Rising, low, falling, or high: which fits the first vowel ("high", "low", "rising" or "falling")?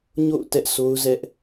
falling